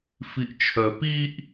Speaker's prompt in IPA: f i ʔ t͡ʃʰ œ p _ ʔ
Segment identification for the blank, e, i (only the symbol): i